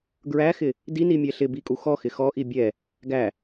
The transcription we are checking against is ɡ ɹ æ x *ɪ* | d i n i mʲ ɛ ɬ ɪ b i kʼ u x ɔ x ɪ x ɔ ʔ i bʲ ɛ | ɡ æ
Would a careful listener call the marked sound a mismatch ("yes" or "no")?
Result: no